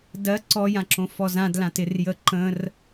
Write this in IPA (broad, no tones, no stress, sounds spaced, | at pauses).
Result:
d ɜ ǀ ɔ j ã ǁ õ f ɔ z ã d l ã t ɪ r j ə ǃ ə̃ r